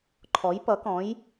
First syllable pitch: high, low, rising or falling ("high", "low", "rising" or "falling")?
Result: rising